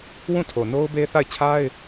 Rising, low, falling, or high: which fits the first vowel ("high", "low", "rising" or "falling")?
falling